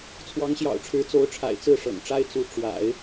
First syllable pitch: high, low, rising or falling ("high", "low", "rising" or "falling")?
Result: rising